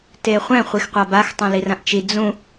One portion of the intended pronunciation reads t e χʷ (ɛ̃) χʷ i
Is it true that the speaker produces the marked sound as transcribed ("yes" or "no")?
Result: yes